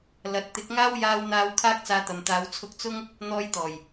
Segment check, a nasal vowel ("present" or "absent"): absent